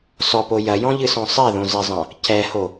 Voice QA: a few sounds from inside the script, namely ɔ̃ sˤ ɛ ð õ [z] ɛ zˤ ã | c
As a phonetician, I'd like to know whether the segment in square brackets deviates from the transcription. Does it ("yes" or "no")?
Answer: no